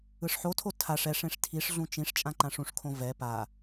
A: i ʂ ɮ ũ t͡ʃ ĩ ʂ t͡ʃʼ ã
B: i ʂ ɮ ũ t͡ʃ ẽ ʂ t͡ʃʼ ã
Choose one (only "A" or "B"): A